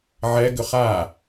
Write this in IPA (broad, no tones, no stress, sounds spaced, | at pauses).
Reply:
ʕ ɛ ɡ ʏ χ a